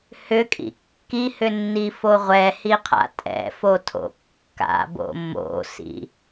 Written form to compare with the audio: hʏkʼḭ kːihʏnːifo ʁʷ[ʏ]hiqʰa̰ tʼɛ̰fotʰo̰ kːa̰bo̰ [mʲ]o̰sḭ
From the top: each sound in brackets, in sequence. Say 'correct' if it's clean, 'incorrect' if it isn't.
incorrect: ɛ, incorrect: m

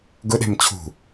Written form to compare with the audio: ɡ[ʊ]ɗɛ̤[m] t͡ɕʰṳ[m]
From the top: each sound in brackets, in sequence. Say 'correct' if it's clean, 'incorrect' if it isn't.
correct, correct, incorrect: none

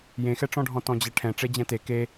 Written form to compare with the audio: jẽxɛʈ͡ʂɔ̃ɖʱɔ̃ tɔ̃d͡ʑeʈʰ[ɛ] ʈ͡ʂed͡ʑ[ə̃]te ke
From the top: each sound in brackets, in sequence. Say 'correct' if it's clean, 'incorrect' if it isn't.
incorrect: ɛ̃, incorrect: ɛ̃

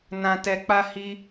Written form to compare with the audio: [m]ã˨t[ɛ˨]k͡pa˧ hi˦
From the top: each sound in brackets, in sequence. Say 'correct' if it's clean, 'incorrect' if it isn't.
incorrect: n, correct

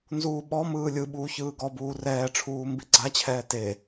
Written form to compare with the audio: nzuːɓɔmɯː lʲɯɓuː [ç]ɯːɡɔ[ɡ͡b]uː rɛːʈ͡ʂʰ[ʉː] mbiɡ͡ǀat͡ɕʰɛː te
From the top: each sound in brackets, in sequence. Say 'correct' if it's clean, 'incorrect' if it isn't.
correct, incorrect: b, incorrect: uː

